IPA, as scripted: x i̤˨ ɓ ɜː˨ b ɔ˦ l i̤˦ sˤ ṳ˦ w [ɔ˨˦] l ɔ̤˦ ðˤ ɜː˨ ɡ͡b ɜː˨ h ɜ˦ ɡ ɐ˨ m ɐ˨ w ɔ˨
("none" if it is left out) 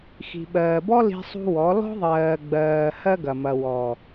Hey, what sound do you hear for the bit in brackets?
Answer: ɔ˨˦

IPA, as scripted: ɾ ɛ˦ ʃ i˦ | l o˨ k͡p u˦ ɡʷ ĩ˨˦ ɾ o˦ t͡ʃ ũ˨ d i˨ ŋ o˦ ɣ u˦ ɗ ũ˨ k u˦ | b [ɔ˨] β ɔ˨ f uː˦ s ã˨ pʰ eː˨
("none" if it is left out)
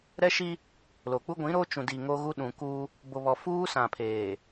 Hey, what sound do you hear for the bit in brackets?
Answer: o˨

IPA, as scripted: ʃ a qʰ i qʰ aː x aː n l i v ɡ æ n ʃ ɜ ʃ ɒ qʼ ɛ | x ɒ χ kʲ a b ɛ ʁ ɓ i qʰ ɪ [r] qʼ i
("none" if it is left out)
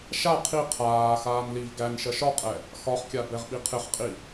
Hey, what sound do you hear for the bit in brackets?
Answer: χ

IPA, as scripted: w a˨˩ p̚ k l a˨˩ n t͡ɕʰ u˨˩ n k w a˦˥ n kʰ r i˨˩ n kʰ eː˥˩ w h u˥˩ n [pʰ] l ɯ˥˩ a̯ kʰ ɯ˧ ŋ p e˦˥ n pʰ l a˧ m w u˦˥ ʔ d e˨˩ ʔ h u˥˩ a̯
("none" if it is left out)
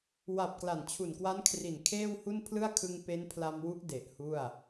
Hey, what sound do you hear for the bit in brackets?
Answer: pʰ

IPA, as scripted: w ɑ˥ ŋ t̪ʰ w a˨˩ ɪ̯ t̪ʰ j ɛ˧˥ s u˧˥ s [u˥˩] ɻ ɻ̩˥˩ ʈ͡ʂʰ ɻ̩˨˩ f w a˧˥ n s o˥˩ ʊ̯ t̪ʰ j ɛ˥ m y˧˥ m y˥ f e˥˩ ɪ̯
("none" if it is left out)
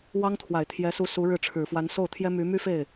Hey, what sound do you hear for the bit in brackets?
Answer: u˧˥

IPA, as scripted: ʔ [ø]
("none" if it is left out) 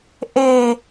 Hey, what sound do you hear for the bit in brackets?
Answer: e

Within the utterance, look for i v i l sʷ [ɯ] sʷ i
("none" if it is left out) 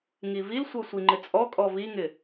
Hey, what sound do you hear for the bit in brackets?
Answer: ɤ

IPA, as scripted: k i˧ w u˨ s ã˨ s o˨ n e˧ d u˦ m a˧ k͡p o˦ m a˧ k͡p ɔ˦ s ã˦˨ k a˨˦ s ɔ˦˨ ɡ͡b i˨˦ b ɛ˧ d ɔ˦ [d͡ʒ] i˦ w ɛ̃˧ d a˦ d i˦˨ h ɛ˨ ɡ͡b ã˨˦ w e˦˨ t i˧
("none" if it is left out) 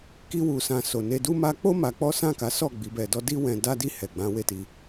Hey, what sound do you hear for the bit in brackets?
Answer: d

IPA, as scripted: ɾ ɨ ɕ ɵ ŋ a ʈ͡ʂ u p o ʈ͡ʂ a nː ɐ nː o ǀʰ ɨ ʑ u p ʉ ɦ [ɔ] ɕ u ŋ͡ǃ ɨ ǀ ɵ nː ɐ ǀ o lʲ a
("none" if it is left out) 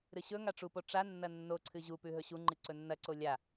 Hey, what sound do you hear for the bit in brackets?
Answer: ɵ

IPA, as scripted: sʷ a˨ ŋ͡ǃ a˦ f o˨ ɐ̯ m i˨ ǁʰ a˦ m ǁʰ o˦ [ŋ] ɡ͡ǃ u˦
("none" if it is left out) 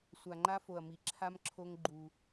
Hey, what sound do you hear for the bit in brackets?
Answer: ŋ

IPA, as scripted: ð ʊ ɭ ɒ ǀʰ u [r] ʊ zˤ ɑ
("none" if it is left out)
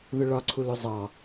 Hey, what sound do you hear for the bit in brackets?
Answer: l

